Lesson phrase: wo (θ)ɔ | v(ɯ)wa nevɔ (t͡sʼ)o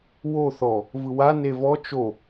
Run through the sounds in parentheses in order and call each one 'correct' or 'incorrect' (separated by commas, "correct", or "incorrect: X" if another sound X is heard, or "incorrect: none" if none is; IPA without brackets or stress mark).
correct, correct, incorrect: t͡ʃ